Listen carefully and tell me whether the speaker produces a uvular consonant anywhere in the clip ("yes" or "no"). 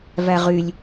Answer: yes